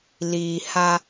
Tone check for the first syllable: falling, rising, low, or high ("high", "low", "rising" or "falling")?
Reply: low